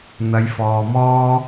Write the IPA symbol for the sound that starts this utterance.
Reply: n̪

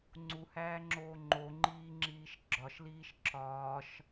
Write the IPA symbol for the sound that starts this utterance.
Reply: ŋ͡ǀ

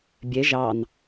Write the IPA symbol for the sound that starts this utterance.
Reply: bʲ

